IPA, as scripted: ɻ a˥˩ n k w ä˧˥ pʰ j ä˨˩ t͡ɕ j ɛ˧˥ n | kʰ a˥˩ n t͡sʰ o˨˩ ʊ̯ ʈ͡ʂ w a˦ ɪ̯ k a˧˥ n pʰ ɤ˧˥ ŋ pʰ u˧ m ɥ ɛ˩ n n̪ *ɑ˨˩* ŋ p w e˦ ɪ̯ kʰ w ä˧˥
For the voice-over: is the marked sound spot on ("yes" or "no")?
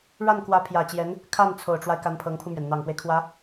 yes